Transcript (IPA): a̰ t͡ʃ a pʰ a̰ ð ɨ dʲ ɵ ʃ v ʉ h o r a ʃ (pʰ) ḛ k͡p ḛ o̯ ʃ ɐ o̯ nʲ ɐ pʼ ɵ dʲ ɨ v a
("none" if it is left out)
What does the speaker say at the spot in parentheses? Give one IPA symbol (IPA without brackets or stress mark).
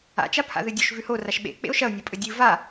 ɓ